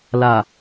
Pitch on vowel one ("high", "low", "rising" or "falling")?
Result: low